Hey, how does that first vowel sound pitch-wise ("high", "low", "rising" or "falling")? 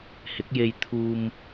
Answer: rising